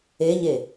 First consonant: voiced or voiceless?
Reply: voiced